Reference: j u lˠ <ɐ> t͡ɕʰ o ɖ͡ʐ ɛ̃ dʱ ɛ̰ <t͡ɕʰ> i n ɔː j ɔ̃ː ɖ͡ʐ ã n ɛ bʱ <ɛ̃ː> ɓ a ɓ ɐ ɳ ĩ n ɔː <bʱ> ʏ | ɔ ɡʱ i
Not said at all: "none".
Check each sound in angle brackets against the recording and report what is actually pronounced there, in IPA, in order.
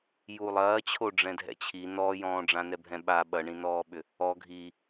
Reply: ɐː, t͡ɕʰ, ɛ̃, ɓ

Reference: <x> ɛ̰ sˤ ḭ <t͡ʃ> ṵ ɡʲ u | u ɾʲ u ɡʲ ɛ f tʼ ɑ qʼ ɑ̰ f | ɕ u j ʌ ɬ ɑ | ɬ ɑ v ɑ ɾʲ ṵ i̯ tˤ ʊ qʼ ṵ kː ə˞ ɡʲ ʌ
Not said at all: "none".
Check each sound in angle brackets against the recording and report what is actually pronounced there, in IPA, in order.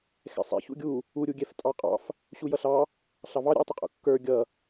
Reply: x, ç

